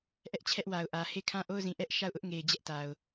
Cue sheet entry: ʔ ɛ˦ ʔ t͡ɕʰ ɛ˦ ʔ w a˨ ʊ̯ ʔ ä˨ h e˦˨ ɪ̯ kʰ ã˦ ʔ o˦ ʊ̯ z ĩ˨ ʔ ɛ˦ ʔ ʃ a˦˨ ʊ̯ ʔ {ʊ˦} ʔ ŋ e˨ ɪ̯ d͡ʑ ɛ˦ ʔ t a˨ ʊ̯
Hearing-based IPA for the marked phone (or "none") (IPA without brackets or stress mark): ʊ˦